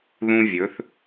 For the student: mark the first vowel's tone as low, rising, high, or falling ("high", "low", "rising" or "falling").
high